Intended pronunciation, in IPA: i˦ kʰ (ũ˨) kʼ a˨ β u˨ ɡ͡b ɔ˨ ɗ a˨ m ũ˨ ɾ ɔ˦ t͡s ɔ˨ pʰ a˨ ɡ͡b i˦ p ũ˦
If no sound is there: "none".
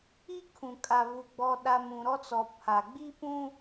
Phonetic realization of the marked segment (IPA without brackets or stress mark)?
ũ˨